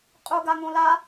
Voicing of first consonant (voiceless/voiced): voiceless